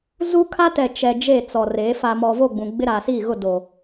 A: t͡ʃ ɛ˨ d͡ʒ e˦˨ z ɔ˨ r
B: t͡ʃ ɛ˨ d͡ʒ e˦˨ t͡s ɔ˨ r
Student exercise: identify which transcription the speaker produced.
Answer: B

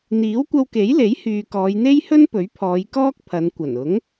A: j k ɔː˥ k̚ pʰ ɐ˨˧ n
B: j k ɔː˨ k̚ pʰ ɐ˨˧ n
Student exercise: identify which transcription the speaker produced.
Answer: A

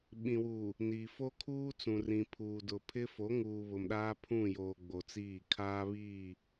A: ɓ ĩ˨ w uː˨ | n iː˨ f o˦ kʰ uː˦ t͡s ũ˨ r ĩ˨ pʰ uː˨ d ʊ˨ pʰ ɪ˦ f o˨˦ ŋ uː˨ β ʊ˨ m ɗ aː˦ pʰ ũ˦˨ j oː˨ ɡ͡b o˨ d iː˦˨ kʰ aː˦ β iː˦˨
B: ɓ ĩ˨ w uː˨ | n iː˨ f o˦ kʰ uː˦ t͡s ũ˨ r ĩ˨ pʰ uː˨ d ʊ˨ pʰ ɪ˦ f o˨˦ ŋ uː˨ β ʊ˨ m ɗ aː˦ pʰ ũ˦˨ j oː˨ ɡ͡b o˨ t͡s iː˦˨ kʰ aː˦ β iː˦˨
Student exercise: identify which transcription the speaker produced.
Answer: B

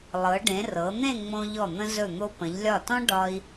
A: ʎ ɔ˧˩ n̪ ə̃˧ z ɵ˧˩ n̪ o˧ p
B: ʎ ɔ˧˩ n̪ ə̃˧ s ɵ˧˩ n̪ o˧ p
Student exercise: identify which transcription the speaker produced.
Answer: A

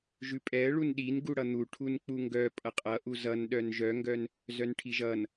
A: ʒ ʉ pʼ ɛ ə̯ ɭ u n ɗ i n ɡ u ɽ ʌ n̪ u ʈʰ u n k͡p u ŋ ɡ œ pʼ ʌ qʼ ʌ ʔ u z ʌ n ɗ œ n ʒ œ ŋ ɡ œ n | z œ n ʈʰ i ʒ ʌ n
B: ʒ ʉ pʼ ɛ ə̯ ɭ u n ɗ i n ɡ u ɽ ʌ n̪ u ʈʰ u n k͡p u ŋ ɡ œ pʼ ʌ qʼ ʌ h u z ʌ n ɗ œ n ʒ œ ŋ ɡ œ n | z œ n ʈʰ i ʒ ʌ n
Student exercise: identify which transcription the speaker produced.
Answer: A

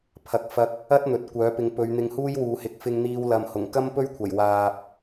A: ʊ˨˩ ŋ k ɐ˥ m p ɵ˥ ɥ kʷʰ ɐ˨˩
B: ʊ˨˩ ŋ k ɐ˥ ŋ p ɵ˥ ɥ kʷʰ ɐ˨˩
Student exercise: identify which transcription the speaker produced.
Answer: A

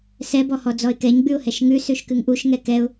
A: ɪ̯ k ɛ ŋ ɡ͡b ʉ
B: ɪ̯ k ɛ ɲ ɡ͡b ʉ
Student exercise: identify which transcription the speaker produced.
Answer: B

